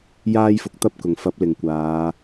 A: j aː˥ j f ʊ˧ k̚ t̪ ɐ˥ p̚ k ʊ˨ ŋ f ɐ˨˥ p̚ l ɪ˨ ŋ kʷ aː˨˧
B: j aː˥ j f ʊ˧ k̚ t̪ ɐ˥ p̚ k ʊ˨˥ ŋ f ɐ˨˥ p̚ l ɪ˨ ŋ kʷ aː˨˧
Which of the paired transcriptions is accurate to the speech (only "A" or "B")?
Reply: A